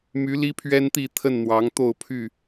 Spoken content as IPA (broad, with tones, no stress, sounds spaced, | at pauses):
m y˨˦ l i˦ pʰ ɥ ɛ˦ n t̪ i˥˨ t̪ʰ ə˥˨ n n̪ w ɑ˨˦ ŋ t̪ o˥˨ ʊ̯ pʰ y˥˨